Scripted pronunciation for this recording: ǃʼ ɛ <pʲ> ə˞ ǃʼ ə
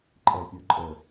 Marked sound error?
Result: no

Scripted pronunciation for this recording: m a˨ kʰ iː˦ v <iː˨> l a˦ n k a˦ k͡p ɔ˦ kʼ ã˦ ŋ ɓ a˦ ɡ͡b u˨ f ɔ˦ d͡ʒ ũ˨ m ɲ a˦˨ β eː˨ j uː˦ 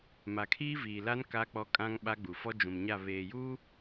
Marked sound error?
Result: no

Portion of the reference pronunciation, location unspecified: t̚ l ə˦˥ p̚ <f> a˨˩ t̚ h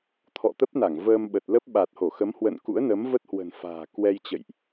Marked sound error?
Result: yes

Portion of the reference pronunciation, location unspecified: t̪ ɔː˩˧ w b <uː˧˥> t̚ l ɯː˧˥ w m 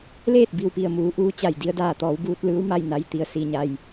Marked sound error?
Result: yes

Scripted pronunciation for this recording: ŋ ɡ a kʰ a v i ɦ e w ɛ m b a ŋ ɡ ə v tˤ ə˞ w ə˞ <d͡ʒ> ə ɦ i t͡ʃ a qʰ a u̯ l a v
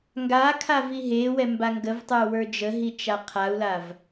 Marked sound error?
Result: no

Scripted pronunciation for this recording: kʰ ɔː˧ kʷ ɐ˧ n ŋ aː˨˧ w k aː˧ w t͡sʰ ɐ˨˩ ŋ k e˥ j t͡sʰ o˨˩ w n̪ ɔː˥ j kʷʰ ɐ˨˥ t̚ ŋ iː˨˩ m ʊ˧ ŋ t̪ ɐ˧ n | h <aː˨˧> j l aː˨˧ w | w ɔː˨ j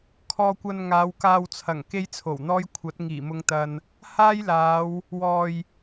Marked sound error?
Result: yes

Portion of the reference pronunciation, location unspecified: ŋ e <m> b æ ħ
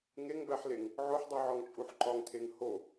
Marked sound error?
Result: yes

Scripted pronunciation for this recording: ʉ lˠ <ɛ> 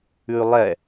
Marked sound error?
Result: no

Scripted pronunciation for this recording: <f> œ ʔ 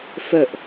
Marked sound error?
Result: no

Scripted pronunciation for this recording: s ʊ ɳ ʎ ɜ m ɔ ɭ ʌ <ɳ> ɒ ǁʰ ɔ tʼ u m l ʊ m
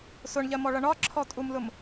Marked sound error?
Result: no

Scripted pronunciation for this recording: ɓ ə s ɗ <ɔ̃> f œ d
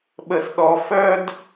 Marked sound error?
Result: yes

